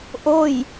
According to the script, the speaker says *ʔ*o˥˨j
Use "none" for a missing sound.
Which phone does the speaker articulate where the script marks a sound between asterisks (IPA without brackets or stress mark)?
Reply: ʔ